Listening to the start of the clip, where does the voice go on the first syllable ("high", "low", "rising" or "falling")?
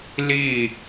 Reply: falling